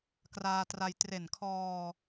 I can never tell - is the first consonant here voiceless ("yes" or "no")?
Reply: yes